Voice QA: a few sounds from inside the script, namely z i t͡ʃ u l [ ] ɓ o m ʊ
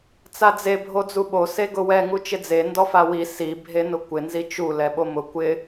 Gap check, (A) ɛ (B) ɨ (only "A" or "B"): A